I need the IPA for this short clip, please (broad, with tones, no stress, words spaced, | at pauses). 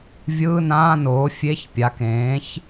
vʲɯː˧˥˧nãː˧˥˧noː˩˥ fʲe˧˥˧çpʲa˩˥kẽː˩˥ç